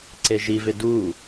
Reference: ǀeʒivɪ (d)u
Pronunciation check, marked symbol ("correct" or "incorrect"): correct